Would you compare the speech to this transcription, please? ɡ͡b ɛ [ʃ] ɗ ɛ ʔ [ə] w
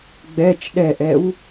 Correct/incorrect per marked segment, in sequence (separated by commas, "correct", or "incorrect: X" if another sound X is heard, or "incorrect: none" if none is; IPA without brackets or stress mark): incorrect: t͡ʃ, incorrect: ɛ